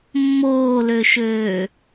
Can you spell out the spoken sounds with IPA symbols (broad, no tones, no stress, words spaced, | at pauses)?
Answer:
mːoːløʃøː